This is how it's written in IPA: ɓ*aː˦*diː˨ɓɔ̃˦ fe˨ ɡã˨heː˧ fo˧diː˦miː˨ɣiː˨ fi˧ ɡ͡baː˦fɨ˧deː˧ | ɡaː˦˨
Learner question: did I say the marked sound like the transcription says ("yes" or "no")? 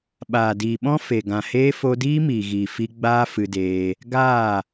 no